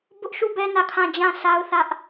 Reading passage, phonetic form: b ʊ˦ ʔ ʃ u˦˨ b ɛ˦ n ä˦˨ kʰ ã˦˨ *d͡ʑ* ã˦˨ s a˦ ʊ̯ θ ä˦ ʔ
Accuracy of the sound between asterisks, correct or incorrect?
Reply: correct